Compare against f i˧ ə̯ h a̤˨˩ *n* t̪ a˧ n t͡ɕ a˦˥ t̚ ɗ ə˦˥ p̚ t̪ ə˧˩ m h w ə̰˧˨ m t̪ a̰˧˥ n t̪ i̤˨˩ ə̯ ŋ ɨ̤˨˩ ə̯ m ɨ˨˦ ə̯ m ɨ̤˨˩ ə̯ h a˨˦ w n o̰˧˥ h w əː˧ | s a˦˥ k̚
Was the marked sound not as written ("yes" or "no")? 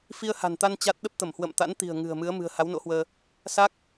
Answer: no